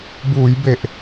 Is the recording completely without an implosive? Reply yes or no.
yes